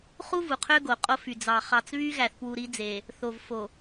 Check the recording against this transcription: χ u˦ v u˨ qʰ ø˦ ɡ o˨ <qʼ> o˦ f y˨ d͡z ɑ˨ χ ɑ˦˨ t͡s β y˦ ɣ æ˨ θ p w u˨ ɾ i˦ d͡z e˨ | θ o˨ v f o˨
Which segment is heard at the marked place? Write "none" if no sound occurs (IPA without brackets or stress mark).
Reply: qʼ